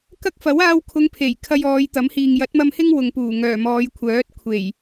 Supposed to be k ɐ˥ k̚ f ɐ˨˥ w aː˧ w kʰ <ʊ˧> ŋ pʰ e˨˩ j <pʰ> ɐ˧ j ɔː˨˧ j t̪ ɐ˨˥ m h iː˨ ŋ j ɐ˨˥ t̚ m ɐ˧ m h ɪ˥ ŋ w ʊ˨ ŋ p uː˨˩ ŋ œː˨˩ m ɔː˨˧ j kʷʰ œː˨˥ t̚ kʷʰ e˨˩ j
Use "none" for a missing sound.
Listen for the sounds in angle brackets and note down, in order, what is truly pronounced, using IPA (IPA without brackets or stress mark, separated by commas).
ʊ˨˧, kʰ